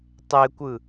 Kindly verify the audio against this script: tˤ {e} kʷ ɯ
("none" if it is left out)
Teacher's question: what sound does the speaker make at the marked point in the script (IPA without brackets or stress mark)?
e